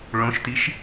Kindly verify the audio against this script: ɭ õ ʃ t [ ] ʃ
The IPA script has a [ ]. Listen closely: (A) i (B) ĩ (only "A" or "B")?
A